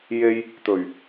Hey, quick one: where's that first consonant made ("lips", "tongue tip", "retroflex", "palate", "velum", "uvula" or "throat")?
palate